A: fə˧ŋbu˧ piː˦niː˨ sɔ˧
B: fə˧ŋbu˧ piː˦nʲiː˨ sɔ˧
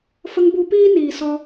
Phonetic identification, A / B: A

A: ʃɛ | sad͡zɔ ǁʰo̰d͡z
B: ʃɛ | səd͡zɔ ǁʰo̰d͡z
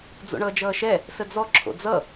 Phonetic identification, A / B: B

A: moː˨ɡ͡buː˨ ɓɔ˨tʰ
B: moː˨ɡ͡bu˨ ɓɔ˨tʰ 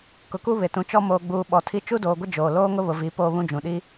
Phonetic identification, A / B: A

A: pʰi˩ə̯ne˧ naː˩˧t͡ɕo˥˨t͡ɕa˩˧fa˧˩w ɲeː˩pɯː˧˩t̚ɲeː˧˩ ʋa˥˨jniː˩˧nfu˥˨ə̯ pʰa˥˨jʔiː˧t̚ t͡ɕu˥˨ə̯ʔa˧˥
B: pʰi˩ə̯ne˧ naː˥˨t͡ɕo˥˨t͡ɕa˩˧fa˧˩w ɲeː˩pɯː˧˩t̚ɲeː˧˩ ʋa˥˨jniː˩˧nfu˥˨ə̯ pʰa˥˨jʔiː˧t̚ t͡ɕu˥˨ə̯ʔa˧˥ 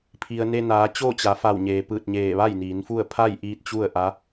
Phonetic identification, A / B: A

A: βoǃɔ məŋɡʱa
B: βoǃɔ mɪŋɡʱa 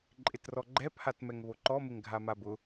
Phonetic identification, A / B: B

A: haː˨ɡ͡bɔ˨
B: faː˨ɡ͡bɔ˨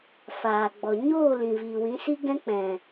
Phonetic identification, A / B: B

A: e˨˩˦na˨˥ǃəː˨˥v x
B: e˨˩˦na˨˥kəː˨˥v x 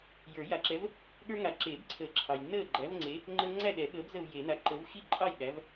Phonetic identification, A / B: A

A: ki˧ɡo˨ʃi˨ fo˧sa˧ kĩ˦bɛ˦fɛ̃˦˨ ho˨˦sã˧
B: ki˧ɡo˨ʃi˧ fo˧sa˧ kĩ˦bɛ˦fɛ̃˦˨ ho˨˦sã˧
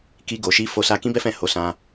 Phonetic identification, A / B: B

